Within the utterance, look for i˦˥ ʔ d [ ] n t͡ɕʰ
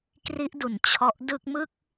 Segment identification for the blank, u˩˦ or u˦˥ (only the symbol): u˩˦